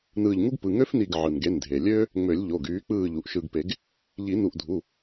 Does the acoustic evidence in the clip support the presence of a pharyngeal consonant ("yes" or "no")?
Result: yes